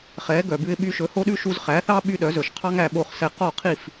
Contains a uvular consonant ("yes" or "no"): yes